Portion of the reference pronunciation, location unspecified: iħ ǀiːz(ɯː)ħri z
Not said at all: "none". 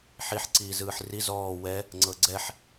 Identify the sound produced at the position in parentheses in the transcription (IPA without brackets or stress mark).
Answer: ɯː